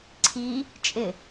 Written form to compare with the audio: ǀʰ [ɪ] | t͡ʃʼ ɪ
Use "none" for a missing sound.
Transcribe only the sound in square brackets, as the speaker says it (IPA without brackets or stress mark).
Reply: i